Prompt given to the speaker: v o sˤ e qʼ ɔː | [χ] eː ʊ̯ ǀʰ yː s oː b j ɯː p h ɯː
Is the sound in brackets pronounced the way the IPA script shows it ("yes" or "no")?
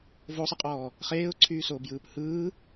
yes